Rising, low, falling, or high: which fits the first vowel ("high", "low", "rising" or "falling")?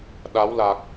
rising